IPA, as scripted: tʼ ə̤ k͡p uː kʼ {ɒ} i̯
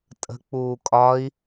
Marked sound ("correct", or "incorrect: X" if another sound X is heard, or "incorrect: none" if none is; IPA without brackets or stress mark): correct